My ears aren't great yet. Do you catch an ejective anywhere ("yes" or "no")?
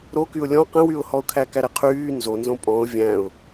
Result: yes